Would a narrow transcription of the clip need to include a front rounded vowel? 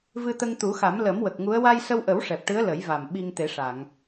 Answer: no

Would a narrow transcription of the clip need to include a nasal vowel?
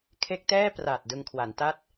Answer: no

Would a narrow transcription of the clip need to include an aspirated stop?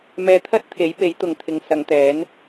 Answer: yes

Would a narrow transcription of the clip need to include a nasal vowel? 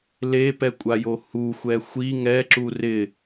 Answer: no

